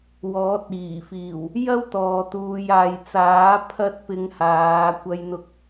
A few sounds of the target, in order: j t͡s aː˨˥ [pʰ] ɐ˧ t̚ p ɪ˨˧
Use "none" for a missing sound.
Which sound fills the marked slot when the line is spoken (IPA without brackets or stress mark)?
pʰ